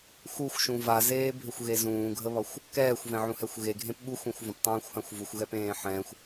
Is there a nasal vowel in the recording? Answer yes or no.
yes